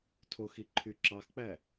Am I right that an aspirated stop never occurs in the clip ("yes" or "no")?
no